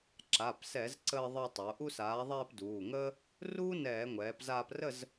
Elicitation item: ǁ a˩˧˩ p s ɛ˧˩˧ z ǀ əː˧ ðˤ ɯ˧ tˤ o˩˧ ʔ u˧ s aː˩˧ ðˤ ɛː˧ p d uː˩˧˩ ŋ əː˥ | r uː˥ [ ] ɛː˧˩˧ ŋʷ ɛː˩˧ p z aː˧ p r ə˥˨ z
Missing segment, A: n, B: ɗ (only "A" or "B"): A